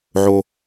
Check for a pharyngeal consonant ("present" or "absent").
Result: present